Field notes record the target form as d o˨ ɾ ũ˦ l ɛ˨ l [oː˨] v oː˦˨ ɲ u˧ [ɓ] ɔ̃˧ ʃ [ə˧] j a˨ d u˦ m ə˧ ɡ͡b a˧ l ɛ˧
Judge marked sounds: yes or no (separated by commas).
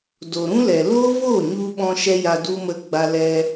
no, yes, no